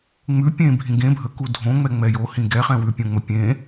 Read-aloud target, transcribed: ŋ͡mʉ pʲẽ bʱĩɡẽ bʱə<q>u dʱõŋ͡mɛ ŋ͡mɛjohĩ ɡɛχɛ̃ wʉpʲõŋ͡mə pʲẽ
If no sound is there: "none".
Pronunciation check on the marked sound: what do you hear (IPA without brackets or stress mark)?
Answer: k